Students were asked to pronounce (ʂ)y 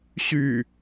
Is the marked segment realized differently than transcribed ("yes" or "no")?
yes